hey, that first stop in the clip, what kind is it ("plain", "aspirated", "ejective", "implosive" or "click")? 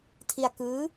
aspirated